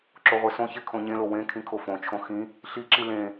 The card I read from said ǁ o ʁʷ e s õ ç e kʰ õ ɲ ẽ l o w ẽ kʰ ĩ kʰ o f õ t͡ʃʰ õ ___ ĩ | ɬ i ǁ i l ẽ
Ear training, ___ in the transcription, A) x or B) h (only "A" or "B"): A